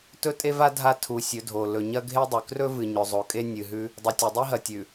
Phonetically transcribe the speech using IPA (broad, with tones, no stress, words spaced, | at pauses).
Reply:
tɵ˦tʼe˦va˦ dʱa˦tʰu˨˦ sʲɵ˨˦dʱo˨ lɵ˨ɲɐ˦ɡʱe˦ dˤʉ˨ krɵ˦vɨ˨ ɲɵ˨zˤo˨kʼe˦ nʲɨ˨ɦʉ˦ | dˤɨ˨tʲe˨dˤi˦ɦɐ˨ tʲʉ˨